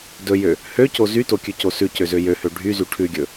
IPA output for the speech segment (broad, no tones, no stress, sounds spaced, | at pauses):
d ɵ j ø | h ø c o z y t o kʲ ʉ c o s ʉ c ø z ø j ø h ø ɖʱ y z y ʈʰ ʉ ɡʲ ɵ